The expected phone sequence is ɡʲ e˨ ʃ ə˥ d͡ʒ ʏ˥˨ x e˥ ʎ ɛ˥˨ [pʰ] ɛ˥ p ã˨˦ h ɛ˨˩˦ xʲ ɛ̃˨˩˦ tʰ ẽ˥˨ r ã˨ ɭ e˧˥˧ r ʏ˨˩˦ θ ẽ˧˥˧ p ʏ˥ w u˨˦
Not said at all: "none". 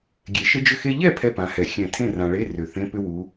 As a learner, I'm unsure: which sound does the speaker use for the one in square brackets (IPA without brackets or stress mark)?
pʰ